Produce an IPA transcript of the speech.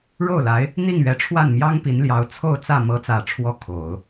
ɻ o˥˩ ʊ̯ l a˧˥ ɪ̯ | n̪ i˥˩ ŋ ɥ ɛ˧˥ ʈ͡ʂʰ w a˥˩ n m j ɑ˥ ŋ p i˧˥ n l j ɑ˧˥ ʊ̯ t͡sʰ o˥˧ ʊ̯ t͡s ä˥˩ m ɤ˧˥ t͡s ä˨˩ ʈ͡ʂʰ w ɔ˧˥ kʰ o˨˩˦ ʊ̯

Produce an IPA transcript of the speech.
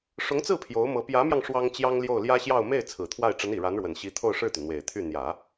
ʂ ʊ˧˥ ŋ t͡s ɹ̩˥˩ pʰ j o˧˥ ʊ̯ m ɤ˧˥ p j ä˧˥ m j ɑ˧ ŋ ʂ w ɑ˥ ŋ t͡ɕ j ɑ˥ ŋ l j o˥˩ ʊ̯ l j ä˥ ɕ j ɑ˥˧ ʊ̯ m e˥˩ ɪ̯ t͡sʰ ɹ̩˨˩ t̪ʰ w a˥˩ ɪ̯ ʈ͡ʂ ə˧˥ n i˨˩ ɻ a˧˥ n ɻ w ə˨˩ n ɕ i˧˥ t̪ʰ o˥˧ ʊ̯ ʂ ɻ̩˥˩ t̪ y˩ n̪ w e˨˩ ɪ̯ t̪ʰ y˥˩ n̪ j ä˨˩˦

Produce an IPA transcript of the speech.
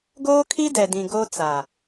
ɡ oː˦ kʰ i˦ d ɛ˨ d ĩ˨ ɡ o˦ t͡s a˨

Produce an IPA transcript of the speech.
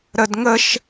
ɾ ə d ŋ ə ʃ

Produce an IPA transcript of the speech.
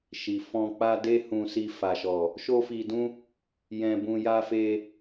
ʃ i˨ f ɔ̃˧ k͡p a˦ d e˦ h ũ˧ s i˧ f a˨ ʃ ɔ˨ | ʃ o˦ f i˧ d ũ˦ | j ɛ̃˧ b ũ˧ j a˧ f e˧

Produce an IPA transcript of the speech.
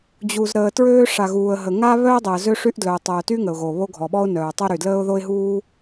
d͡ʑ u˩ z ɾ əː˩ t ɹ øː˥ ʂ a˩ ɣ uː˩ ə̯ ɦ ə˩ ŋ a˥ β œ˥ ə̯ dˤ əː˩ z ø˥ ʂ y˥ ʔ d l œ˩ ʊ̯ tˤ œː˩ t y˥ ŋ ə˩ ʊ̯ ɣ o˩ β o˥ ɡʱ ɔ˩ ɓ ɔ˥ ʊ̯ n œː˩ tˤ o˥ ɾ y˩ d l əː˥ ʊ̯ ð o˥ ɪ̯ ɦ uː˥

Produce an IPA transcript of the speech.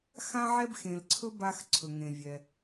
x ã˥ ʕ ɛ˥ b x ẽ˨ l ǀʰ ɵ˥ b a˦ x ǀʰ ɵ˩ ŋ ẽ˩ vʲ ɛ˩

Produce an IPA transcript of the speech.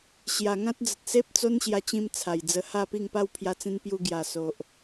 ɕ j a˨˩ ŋ ã˦ t̚ d͡z ə˨ t̚ s e˦ p̚ t͡s o˦ n ɕ j a˧ t͡ɕ ĩ˧ m t͡sʰ a˨˩ j d͡z ə˧ h a˥˧ p i˥˧ ŋ p a˥˧ w pʰ j a˧ t͡s ĩ˧ n p j u˧ ɡ j a˨˩ s o˨ ʔ

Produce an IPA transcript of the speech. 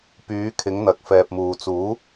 p yː˨˧ kʰ ɪ˨˧ ŋ n̪ ɐ˨ k̚ f ɛː˨ p̚ m uː˨ t͡s uː˨˥

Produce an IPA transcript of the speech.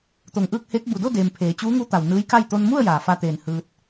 t̪ o˧˩ ŋ ʔ ɯː˥˨ k̚ h eː˧˥ k̚ b u˩ d o˥˨ d eː˩ m pʰ eː˩˧ t͡ɕ uː˧˥ ŋ u˧˥ t̪ a˩ w n ɯː˧˥ j k a˥˨ j t̪ o˧ n m u˥˨ ə̯ j aː˩ f a˧ t̪ eː˧˩ n h ɯː˧ t̚

